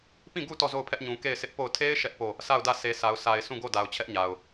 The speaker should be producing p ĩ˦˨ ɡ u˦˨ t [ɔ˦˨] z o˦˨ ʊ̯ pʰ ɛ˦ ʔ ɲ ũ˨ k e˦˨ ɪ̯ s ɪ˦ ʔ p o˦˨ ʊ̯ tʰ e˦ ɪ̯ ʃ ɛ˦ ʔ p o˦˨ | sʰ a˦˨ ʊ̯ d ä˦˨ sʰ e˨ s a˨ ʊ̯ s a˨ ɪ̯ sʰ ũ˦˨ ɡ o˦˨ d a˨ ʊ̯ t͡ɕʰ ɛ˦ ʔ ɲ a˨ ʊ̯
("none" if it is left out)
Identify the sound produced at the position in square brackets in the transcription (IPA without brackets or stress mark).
ɔ˦˨